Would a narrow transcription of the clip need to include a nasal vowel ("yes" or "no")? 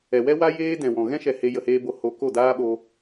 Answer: yes